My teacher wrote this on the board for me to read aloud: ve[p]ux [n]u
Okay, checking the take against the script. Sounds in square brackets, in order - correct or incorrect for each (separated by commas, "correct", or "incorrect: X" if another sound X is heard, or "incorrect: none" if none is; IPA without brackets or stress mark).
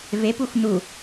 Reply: correct, correct